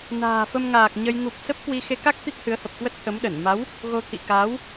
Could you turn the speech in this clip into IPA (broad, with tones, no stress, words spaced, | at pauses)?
na̤ː˨˩fə˧mŋaː˨˩k̚ ɲə˧j ŋu˨˩p̚ sə˦˥p̚kwi˧ xe˧ka˦˥k̚ t̪i˦˥k̚hɨ˨˦ə̯hə˨˩p̚kwə˦˥t̚ t̪ʰə˨˦mɗə˧˩n ma˨˦w | ɣo˧t̪ʰḭ˧˨ kaː˨˦w